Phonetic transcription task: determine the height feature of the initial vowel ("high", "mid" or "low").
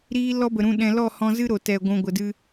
high